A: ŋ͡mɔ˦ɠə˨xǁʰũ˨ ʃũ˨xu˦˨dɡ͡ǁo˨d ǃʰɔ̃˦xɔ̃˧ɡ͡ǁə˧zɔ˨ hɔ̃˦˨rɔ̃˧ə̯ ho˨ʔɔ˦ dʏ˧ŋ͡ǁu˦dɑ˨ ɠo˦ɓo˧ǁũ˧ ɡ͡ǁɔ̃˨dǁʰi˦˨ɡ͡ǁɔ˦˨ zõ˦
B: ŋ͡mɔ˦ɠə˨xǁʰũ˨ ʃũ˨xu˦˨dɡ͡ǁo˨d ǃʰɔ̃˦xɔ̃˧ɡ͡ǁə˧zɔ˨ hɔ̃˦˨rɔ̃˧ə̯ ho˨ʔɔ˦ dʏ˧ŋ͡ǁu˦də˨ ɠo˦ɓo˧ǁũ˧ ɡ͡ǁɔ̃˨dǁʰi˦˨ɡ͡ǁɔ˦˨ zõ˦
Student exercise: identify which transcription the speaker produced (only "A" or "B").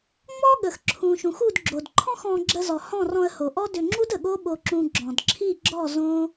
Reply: B